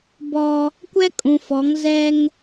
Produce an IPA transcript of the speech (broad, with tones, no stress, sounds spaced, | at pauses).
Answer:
b ɔ˦ | kʷ ɛ˦ kʼ ũ˨ f ɔ˨˦ ŋ z ɛ˦ ŋ